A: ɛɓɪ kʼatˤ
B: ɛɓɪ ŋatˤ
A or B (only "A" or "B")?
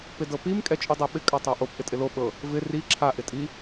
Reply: A